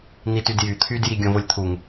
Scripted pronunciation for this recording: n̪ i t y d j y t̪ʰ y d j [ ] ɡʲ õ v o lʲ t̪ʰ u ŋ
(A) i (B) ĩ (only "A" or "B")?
A